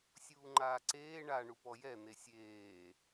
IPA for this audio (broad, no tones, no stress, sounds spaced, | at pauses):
sʲ uː ŋ͡ǃ aː ǀ eː ɳ a ɳ u p ɔ j ɛ n̪ e sʲ eː